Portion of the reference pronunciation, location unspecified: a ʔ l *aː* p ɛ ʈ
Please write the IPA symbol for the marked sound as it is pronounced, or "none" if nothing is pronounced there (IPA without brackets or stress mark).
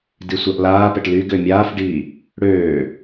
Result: aː